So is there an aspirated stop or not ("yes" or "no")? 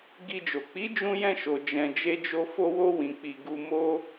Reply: no